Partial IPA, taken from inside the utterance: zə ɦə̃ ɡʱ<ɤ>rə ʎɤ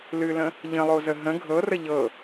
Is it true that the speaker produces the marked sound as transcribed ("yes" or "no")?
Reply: yes